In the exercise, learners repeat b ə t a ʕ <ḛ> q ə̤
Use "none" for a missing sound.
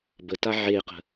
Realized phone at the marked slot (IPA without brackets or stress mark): e